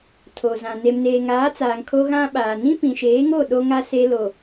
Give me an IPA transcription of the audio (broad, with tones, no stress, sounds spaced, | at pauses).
tʰ o˨ z ã˨ n e˨ m n eː˨ ŋ aː˨˦ t͡s aː˨ ŋ kʰ o˦ ɣ ã˦ ɓ aː˨ n ĩ˦ p ĩ˨ ʃ eː˨˦ ŋ o˦˨ ɗ o˦ ŋ a˦ s e˦ l o˨